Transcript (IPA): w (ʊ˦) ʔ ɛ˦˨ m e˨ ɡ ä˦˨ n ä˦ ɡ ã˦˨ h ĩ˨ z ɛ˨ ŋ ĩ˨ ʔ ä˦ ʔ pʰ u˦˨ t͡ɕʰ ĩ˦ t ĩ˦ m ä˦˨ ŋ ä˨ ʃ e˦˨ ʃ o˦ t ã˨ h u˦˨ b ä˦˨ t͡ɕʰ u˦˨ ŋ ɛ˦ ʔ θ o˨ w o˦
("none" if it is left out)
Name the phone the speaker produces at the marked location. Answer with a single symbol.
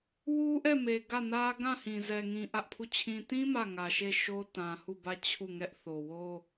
u˦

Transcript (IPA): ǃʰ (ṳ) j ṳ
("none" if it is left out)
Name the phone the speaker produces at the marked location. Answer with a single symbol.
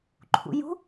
ṵ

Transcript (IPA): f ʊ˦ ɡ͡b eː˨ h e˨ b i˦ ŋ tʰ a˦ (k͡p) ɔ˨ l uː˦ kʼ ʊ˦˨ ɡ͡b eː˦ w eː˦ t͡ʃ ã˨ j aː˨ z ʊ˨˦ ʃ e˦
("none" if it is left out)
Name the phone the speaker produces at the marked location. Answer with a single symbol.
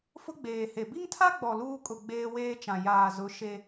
ɡ͡b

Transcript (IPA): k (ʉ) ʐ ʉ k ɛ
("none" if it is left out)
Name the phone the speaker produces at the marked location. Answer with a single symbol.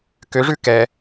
ø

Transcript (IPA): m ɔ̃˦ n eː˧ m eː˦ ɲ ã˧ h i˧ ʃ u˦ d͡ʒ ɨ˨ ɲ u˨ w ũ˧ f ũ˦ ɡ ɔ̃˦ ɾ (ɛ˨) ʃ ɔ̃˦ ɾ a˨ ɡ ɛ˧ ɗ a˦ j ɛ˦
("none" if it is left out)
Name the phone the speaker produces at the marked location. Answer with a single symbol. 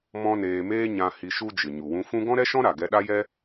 ɛ˦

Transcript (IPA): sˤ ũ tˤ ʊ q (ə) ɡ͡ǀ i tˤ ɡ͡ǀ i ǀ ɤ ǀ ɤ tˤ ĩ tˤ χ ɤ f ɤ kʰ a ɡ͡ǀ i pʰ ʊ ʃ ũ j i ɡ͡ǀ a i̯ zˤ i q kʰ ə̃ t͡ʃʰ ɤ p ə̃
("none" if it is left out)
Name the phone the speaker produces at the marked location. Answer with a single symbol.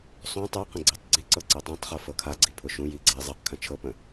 ə̃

